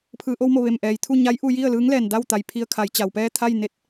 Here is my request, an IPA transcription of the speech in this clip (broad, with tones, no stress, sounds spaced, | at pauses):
pʰ ɯː˩˧ ʔ o˧ w m o˧˩ ʋ e˧˩ m ʔ ɛː˩ j t̪ʰ u˥˨ ɲ a˧˥ j ʔ u˧ j i˥˨ ə̯ l ɯː˧˥ ŋ l ɛː˧˩ n d a˥˨ w t̪ a˩ j pʰ i˧ ə̯ kʰ a˩˧ j t͡ɕ a˩ w p ɛː˥˨ t̪ʰ a˥˨ j n e˧ t̚